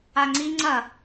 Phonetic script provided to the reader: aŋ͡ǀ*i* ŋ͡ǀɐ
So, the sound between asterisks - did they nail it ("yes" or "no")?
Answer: yes